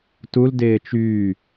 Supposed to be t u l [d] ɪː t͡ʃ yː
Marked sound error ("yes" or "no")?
no